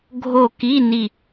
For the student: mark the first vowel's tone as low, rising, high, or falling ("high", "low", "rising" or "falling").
falling